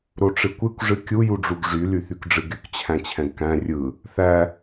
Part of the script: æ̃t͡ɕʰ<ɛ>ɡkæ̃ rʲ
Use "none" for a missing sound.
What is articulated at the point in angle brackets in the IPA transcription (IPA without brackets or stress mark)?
ɛ̃